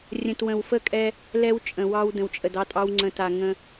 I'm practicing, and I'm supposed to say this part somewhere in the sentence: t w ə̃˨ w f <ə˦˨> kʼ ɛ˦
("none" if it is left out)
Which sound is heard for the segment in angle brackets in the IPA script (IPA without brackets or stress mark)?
ə˦˨